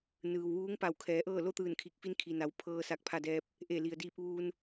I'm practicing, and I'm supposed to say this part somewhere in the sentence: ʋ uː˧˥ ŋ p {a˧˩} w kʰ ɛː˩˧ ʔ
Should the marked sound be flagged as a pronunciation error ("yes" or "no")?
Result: no